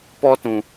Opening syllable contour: high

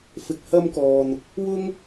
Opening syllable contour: low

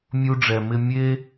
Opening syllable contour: high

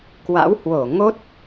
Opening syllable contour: rising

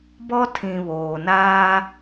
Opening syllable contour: high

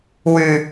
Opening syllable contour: low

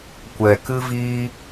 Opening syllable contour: low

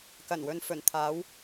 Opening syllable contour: low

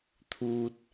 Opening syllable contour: low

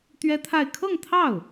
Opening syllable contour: high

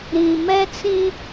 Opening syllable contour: low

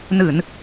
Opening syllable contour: low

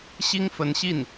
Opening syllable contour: high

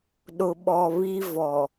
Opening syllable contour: low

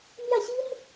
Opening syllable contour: falling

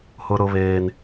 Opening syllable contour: high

